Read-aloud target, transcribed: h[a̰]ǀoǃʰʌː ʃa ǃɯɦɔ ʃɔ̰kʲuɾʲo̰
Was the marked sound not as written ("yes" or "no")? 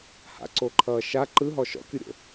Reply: no